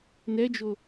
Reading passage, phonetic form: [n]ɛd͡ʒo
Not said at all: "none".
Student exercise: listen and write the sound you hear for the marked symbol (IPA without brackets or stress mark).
n